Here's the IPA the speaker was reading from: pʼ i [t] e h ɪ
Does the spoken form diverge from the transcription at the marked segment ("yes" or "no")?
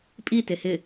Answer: no